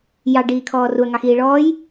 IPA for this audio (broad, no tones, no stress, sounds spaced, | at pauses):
j ɑ ɖ iː kʰ ɔː r u ɐ̯ ŋ ɑ x iː ɭ ɔː j